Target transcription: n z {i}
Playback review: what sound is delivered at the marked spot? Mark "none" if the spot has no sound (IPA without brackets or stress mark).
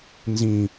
ĩ